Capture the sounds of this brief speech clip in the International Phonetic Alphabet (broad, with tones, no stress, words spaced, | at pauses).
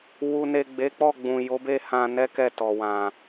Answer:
wu˨ne˨ ɡ͡be˨˦k͡pɔ˦˨ɡ͡bũ˨ jo˨˦be˦hã˧ nɛ˦kɛ˦˨tɔ˨ wã˨